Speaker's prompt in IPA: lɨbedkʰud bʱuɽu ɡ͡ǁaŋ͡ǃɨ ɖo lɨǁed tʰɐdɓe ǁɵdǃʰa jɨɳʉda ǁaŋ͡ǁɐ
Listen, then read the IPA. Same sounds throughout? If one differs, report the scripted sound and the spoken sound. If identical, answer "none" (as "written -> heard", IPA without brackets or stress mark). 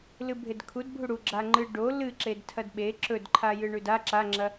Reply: b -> bʱ